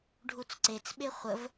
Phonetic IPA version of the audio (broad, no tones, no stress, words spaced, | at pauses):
ɖʱut͡sǀet͡sɓe χʷəv